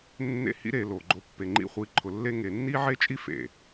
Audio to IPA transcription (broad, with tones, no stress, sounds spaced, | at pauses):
nː ḛ˦ h ḭ˦ ɾ e˧ l o˨ ɡ͡ǃ o˧ pː e˨ ŋ͡ǃ ḭ˧ χʷ i˨˦ ǃʰ ʊ˨ lː e˦ ŋ e˨ nː i˦ ʕ e˦ t͡ʃʼ i˦ f ḛ˨